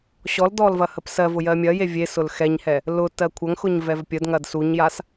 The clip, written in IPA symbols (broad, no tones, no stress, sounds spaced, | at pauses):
ɕ ɔ l d ɔ l v ɐ h ə p s ɜ v ʊ j ɜ mʲ ɐ j e vʲ e s ʊ l x ɛ ɲ h ɛ | l ʊ t ɜ kʷʰ ɐ ŋ x ʊ ɲ v ɛ v pʲ ə d ŋ ɐ d s u ɲ j a s